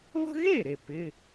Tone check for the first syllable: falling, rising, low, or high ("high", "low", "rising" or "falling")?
high